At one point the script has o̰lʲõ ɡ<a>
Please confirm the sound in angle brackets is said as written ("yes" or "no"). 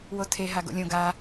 yes